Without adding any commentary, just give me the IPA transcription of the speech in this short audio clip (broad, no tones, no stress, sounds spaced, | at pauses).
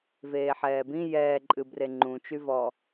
v eː ħ ɛː b ĩ j ɛː ǃʼ ɨ b r e ŋ͡ǃ ũ t͡ʃ y v ɔ